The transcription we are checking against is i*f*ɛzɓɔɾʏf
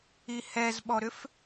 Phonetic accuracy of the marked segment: incorrect: h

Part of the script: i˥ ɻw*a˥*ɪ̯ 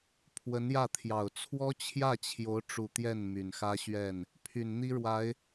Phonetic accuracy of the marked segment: incorrect: a˧˥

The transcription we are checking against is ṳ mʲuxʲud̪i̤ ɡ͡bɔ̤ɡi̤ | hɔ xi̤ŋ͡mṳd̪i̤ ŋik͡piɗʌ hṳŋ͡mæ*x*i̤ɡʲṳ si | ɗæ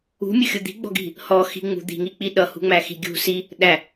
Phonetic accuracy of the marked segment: correct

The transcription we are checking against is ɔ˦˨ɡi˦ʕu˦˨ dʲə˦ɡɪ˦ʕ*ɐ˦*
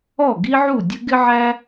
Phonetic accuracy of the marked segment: incorrect: æ˦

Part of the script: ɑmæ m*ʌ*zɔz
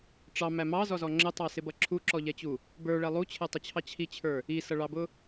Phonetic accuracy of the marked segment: incorrect: ɑ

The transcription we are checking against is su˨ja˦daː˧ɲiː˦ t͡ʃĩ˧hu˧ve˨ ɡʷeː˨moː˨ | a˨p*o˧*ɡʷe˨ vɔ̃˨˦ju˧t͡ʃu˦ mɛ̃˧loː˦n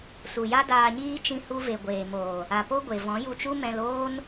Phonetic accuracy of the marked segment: incorrect: o˦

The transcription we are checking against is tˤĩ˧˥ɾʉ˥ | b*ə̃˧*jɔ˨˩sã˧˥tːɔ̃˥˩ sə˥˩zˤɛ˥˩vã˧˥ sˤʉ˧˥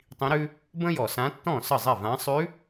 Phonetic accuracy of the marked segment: incorrect: ə̃˥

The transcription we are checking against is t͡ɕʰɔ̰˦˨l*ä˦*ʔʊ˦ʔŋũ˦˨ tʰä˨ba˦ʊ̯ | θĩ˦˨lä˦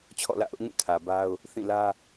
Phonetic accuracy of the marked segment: incorrect: ä̰˦˨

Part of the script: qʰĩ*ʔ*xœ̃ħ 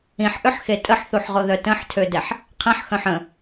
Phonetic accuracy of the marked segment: incorrect: ħ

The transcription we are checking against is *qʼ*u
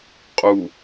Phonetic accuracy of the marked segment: correct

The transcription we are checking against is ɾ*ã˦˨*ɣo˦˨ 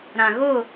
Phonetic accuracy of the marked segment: incorrect: ã˨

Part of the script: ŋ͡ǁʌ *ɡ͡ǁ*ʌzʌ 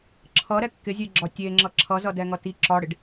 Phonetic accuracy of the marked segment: incorrect: ǁʰ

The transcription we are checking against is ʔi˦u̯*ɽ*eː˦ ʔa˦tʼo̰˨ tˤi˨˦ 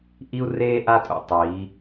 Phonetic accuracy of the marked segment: incorrect: r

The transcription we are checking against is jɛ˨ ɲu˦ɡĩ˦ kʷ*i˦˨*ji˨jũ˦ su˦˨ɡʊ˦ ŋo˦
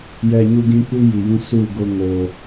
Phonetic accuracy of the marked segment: incorrect: i˦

